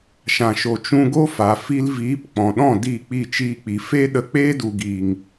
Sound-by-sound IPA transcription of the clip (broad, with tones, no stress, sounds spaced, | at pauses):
ʃ ã˨ ʃ o˨ t͡ʃ ũ˧ ɡ o˦ f a˨ f i˧ l v iː˨˦ p k͡p ɔ̃˨ ɗ ɔ̃˦˨ d i˦˨ k͡p i˦˨ t͡ʃ iː˧ k͡p i˨ f e˦ ɗ ə˧ k͡p eː˦ d u˨ ɡ iː˨ ŋ